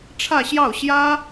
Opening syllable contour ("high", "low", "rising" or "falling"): falling